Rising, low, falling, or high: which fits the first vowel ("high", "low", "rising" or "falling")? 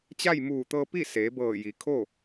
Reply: falling